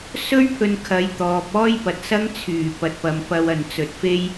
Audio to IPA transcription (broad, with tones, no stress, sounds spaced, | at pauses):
s ɵ˥ ɥ pʰ ɵ˨ n kʰ ɐ˨˧ j t̪ ɔː˨ p̚ ɔː˥ j p ɐ˨ t̚ s ɐ˥ ŋ t͡sʰ yː˨˩ p ɐ˨ t̚ p ɐ˨ m p ɐ˧ w ɐ˨ n t͡s ɵ˨ t̚ f e˥ j